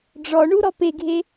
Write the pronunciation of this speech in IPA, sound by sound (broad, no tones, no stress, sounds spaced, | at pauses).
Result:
ɖ͡ʐ ɔ ɳ u ɾ ɔ p e ɡʱ e